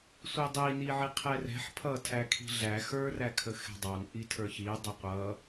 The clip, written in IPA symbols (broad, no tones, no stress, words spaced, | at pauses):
sʷidˤi niʕiqʰɛrɛ̤ħ pʰʌ tʰækʰi̤ɮæ xə˞ rækʰəxɛ̤dˤɑn ʔitʰə˞çi dˤəqʷʌ